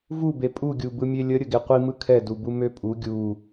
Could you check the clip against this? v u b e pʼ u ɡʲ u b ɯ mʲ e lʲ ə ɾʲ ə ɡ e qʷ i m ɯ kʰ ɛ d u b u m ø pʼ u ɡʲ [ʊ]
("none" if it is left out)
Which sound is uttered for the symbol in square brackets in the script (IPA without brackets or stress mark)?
u